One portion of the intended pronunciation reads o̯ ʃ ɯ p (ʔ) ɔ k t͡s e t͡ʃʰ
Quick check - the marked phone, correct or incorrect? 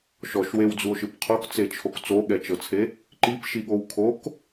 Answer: incorrect